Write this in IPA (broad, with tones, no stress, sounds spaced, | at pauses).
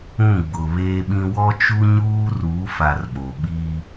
ũ˦˨ ɡ͡b ʊ˨ β eː˦ ɓ ĩ˦ w ɔ˦ t͡ʃ u˦ ɲ uː˦ r uː˨˦ f a˨ r ɓ o˨ ɓ iː˦